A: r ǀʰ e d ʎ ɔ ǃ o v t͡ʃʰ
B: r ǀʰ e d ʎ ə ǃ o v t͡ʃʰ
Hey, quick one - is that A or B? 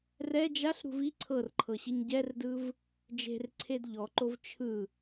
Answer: A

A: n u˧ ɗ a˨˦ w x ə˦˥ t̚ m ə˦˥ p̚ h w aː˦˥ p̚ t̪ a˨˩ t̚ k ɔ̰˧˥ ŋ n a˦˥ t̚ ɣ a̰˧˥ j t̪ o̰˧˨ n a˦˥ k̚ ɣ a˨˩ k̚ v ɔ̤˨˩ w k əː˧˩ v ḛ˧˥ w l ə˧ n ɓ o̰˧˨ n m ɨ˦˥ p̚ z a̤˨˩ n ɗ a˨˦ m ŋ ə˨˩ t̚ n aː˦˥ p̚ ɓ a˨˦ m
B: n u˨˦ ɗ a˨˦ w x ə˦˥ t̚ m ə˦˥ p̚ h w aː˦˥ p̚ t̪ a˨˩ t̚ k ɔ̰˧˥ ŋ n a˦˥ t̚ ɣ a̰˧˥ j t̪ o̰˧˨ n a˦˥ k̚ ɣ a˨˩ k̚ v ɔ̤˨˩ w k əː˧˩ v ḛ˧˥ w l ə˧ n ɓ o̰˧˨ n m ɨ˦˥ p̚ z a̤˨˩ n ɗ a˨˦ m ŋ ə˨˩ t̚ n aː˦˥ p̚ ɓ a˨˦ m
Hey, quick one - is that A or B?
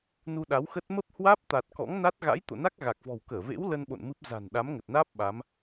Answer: A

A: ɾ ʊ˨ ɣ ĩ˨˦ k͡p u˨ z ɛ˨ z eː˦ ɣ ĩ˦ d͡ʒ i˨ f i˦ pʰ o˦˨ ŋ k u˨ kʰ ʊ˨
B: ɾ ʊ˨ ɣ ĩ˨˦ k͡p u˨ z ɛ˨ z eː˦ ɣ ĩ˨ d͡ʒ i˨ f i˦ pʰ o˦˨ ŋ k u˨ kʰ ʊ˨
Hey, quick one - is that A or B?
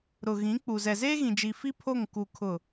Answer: B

